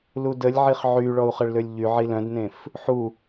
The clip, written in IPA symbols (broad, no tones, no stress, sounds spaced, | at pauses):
l u d ə lʲ ʕ i χ ʕ y ɭ ɔ u̯ χ ə ɭ l ø lʲ ʎ y ʕ i l œ̃ d n ẽ f | ħ u